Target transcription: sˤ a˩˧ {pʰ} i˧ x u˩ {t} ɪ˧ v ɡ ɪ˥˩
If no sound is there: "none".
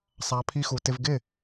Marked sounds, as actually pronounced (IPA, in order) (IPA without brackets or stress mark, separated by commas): pʰ, t